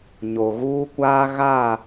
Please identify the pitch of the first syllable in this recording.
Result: low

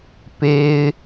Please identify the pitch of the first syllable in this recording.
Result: high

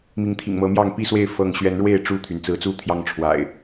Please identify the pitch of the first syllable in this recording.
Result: rising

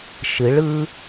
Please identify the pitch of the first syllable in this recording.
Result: rising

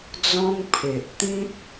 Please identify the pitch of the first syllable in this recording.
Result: high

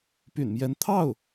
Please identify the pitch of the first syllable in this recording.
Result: low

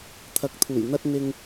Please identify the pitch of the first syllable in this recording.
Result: rising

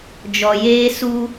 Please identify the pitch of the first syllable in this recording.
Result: low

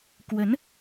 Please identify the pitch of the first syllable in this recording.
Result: rising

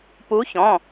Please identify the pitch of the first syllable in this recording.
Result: rising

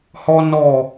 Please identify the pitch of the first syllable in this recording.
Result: high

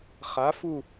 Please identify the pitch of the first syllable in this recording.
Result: rising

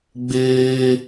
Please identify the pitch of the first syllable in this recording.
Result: high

